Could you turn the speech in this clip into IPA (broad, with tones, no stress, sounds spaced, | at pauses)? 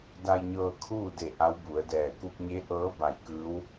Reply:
d a˧ j ɲ ɤː˧ kʰ uː˥˨ d e˧˩ ʔ a˧˥ w b u˩˧ ə̯ d ɛː˧˩ k u˧ p̚ ɲ e˧˥ ʔ ɤː˧˥ b a˧˩ j k ɯː˧˥ w